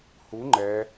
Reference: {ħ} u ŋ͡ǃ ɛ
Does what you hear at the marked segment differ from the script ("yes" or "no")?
yes